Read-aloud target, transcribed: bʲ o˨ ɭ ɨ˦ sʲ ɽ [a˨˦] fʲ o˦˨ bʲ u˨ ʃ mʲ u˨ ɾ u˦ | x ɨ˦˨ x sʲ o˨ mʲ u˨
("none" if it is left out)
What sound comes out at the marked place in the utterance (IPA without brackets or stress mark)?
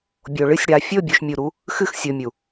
a˨˦